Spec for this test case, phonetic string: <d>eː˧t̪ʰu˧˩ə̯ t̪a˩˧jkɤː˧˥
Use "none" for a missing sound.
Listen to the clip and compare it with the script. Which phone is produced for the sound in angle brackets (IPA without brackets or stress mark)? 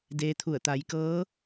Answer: d